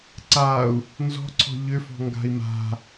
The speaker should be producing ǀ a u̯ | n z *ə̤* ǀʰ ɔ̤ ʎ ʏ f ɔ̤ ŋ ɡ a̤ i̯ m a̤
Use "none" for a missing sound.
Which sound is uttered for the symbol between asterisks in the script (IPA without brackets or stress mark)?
ɔ̤